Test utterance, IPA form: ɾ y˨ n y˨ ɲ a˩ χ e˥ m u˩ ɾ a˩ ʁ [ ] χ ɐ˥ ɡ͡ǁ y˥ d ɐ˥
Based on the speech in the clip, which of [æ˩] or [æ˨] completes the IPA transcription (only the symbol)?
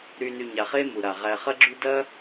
æ˨